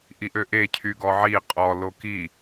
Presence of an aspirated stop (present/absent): present